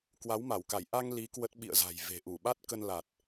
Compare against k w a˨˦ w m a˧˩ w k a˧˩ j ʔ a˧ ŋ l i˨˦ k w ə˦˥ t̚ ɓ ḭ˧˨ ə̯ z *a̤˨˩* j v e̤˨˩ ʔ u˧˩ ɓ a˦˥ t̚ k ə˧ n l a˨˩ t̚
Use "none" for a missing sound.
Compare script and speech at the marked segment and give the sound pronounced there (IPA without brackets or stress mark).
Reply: a̤˨˩